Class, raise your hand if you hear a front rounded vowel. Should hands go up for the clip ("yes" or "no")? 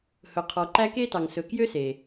yes